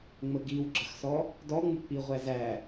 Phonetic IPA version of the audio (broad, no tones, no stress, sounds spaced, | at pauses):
ŋ͡m ə ɡ i w ɡ͡ǁ ə x s ɔ | d ɔ ŋ͡m u k͡p i ʁʷ æ z æ